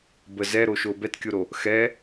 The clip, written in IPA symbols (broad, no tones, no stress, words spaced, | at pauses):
bə zɛɾoʃo bɛtkʲoɾo | xɛ